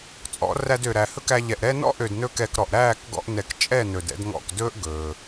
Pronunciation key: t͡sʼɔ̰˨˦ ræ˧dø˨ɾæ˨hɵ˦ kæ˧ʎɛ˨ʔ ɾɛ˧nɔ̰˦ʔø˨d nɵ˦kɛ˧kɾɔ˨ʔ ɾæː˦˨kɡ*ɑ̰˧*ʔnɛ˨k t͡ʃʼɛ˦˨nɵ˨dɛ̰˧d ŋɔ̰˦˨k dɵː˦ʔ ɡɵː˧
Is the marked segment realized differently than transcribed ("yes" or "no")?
yes